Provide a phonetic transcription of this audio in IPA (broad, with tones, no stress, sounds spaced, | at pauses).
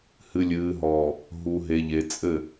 h ɨ˨ lʲ ɨː˨ ɦ ɔː˨ | ɦ u˨ ɦ e˨ ʎ e˨ t͡sʼ ɘ˦˨